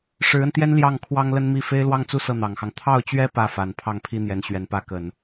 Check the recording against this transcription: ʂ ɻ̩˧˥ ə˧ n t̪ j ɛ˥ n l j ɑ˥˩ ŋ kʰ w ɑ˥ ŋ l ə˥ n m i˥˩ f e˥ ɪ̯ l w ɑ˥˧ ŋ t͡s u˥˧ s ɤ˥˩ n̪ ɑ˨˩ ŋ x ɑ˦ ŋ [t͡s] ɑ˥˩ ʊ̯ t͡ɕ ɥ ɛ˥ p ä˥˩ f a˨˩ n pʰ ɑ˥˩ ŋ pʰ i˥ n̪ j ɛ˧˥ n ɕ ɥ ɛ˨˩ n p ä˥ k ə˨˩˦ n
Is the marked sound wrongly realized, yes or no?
yes